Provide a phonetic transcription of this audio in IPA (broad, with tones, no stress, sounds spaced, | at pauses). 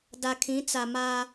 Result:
d a˨ kʰ ĩ˨˦ t͡s a˨ m a˦